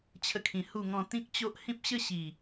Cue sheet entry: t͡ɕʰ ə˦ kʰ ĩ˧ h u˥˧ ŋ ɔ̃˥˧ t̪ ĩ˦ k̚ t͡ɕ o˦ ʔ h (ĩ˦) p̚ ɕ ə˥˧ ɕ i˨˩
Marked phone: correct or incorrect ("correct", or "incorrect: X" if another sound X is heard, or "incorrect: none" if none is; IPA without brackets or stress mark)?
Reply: correct